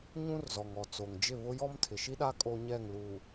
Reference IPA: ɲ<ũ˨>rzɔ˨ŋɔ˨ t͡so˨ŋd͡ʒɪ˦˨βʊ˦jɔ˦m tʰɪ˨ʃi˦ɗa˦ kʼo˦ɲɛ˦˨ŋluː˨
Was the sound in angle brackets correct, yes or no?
no